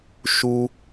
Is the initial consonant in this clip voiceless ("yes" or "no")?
yes